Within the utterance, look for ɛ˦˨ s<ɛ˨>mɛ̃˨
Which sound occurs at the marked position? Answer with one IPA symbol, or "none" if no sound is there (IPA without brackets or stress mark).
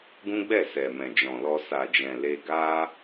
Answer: ɛ˨